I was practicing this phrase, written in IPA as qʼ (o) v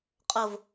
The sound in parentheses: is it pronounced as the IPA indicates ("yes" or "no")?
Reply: yes